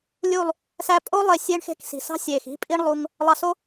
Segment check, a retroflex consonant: present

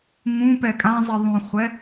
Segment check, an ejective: present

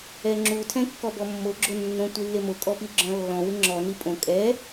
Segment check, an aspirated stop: present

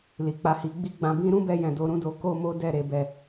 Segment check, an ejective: absent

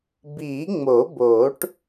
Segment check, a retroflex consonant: present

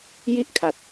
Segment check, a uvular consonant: absent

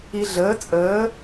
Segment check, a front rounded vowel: absent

